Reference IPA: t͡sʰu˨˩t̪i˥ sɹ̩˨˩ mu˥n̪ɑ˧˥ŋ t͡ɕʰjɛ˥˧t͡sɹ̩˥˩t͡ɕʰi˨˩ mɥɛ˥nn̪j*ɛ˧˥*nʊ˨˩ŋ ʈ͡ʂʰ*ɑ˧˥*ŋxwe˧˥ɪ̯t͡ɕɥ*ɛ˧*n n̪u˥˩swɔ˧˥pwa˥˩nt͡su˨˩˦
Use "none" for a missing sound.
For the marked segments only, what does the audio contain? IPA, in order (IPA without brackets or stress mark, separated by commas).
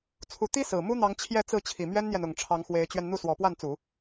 ɛ˨, ɑ˧˥, ɛ˧